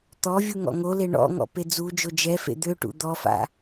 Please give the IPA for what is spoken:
t̪ɔvʲu ŋɔ̰ŋole ɳɔ̰ ŋɔ̰ped͡zud͡ʒo d͡ʒɛfḛ d̪øʈṵ d̪ɔfa̰

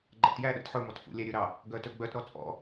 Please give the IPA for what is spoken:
ɡ͡ǃæ̰tjæɗæ̰t ħɵmɔt fṵlʲæɾʲɵɾɑ | ɡœtɵɡ͡bœtɾɔ t͡sʼɔ̰

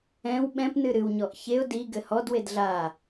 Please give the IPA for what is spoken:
ɛ̃w ɓɛ̃pnɨ ɾɨwɲɔʔ çeʊ̯ di ɡɘhɔdwed ɮa

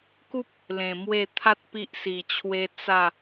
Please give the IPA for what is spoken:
ku˦p̚ | lẽ˨˩ mwe˥˧ t̪ʰa˦t̚ pi˦ʔsi˨˩t͡ɕʰwe˦ t͡sa˥˧

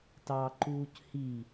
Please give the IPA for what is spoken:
tɑǃuːc hi

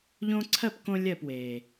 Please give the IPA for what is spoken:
ʎõ˧ǀʰɜ˦˨pkõ˧ lʲɜ˦˨pweː˨

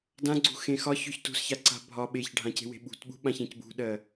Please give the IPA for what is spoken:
dãɡ͡ǀṳxẽ xɒçøç tṳsçaǀa̤ bʱɒ ɓeçɖʱãce̤we̤ ɓṳtɓṳɓãçẽc bṳɗɜ

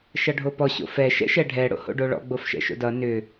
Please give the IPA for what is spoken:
ʃʌɖʱopɔ ɕo̰fɛ ʃɛ̰ʃɛɖʱɛ ɽo̰ho̰ɖoɭɔ̰ ɡ͡bofʃɛ̰ʃo̰dʌ nʏ

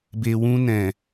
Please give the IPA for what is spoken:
be˨wũ˧nɛ̃˨

